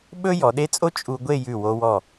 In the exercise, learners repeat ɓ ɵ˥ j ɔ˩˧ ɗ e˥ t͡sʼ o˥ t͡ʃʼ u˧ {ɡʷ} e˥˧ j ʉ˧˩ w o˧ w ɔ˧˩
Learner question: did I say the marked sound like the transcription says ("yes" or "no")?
yes